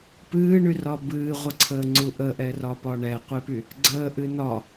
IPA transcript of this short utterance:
p ɨː ɳ y r ɒ b ɨː ʁʷ ə ǀʰ əː ŋ͡ǀ u ʔ ə ʔ ɛ r ɒ p ɒ ɳ ɛ qʷ e p y | ɡ͡ǀ əː ʔ ɨ n ɒ

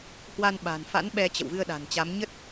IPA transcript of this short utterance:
h w a˧ n ɓ a̤˨˩ n f a̰˧˥ n ɓ ɛ˧ t͡ɕ ə̰˧˨ w v ɨ˧ ə̯ ɗ a̤˨˩ n t͡ɕ a˨˦ m ɲ ə˦˥ t̚

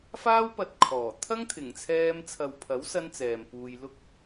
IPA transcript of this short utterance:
f aː˥ w p ɐ˧ t̚ kʰ ɔː˨˩ t̪ʰ ɐ˥ ŋ t̪ʰ ɪ˨˩ ŋ t͡sʰ ɛː˧ m t͡sʰ ɐ˨ w pʰ ɐ˨˥ w s ɐ˧ n t͡s ɛː˨ m p uː˧ j l ʊ˥ k̚

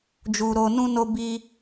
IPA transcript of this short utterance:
d͡ʒ u˨ ɾ o˨ n ũ˧ n o˧ b i˧

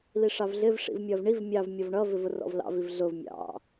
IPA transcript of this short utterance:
l i ʂ ɑ v ɮ ɪ v ʂ ḭ v mʲ ʌː v ɳ i v mʲ ɑ v mʲ ɔ v ɳ ʌ v ɪ v ʊ r ɔ̰ v l ɑ̰ v i v ɮ ʊ v mʲ ɑ̰

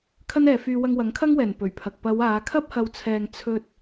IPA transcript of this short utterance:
kʰ ɐ˥ n ɛː˨ f yː˧ w ɐ˧ ŋ w ɐ˨˥ ŋ kʰ ɐ˥ ŋ w ɛː˨˩ n p ɵ˨˩ ɥ pʰ ɐ˨ k̚ p ɐ˨˧ w aː˨˧ kʰ ɐ˥ p̚ h ɐ˨ w t͡sʰ ɛː˨ ŋ t͡sʰ ɵ˧ t̚

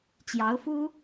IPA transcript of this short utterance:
t͡ɕ j ɑ˧˥ ʊ̯ f u˥

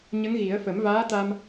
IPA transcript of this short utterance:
ɲ ə˧˥ ŋ ɣ i˨˩˦ ə̯ f ə˨˩˦ m v aː˧˥ t̪ a˧ m

